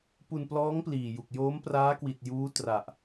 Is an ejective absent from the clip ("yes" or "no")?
yes